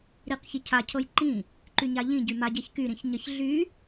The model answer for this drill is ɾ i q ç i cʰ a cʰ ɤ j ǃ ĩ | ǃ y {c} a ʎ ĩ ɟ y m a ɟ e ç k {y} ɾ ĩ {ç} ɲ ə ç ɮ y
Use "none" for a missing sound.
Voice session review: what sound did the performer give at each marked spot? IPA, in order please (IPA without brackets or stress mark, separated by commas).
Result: ɲ, y, ç